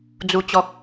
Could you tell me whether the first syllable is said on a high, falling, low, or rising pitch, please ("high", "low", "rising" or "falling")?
low